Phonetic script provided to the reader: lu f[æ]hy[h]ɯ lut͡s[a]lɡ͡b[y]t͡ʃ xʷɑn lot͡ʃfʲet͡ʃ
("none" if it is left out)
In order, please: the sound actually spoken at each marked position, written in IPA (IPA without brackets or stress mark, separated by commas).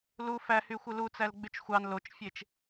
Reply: æ, xʷ, æ, y